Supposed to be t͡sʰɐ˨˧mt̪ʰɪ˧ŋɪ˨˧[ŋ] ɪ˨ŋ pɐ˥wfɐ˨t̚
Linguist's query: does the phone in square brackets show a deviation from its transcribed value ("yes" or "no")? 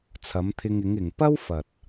no